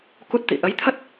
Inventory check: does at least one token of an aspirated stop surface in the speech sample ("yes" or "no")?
yes